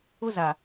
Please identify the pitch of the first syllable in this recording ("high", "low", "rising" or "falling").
high